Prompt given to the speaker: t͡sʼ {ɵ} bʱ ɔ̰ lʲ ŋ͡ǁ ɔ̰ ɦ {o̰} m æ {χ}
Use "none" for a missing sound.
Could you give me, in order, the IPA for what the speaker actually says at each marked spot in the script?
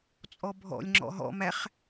ɔ, ɔ̰, χ

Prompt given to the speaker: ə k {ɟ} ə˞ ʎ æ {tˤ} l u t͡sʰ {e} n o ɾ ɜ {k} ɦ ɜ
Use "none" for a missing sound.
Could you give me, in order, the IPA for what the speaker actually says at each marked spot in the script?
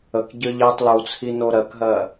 ɟ, tˤ, i, k

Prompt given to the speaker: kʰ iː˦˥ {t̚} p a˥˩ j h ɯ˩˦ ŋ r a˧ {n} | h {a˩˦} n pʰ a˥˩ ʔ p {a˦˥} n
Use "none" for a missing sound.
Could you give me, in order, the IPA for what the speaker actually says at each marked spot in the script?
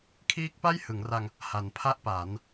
k̚, ŋ, a˩˦, a˩˦

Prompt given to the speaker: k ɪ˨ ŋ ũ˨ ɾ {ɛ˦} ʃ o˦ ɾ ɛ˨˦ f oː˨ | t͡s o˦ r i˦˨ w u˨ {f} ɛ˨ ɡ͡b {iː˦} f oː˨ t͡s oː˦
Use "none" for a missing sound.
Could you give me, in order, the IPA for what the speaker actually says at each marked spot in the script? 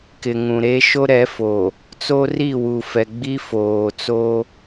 e˦, f, i˦

